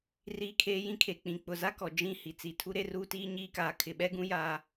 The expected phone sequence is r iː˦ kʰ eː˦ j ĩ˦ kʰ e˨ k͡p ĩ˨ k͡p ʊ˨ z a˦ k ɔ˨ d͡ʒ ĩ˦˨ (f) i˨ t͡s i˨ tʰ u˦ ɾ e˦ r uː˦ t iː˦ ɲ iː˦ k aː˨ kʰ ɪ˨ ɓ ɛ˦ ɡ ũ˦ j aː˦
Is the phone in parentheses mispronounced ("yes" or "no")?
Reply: yes